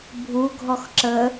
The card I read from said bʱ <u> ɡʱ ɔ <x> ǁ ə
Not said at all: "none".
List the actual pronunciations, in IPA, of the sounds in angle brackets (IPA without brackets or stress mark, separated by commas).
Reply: u, x